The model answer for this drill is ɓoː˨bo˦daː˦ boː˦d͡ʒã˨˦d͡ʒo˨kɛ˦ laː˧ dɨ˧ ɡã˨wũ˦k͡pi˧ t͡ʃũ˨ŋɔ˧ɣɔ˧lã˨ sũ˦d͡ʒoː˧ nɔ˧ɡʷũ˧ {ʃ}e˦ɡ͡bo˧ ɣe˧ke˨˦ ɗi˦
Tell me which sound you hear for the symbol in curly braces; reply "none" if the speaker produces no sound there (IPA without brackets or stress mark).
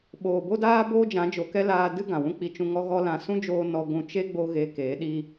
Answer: t͡ʃ